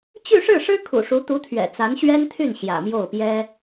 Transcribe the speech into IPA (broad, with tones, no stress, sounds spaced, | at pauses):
t͡ɕ y˥˧ ʂ ɻ̩˥˩ ʂ ɻ̩˥ kʰ ṵ˨˩ ʂ u˧˥ t̪ u˧˥ t̪ʰ ɥ ɛ̰˨˩ t͡s a˧˥ n ɕ ɥ ɛ˥ n t̪ʰ y˥˩ n ɕ j ä̰˨˩ m j o˥˩ ʊ̯ p j ɛ˥